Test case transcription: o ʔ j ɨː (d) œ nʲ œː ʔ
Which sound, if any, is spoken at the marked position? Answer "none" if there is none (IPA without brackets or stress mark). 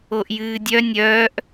dʲ